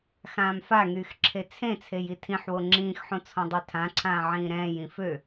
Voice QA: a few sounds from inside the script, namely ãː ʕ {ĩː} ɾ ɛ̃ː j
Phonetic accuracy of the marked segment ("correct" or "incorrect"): correct